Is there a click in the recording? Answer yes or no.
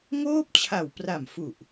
no